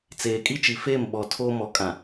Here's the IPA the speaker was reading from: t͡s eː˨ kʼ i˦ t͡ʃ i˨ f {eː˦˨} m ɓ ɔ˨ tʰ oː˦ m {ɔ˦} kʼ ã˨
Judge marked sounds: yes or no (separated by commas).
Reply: yes, no